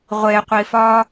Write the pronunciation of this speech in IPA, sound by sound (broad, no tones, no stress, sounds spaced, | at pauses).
ʁʷ e qʷ i f ɒ